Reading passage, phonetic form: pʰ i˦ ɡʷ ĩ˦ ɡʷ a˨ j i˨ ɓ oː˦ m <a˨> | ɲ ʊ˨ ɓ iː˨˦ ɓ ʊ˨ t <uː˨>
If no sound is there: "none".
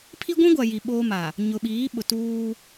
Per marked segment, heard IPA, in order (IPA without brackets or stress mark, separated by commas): a˨, uː˦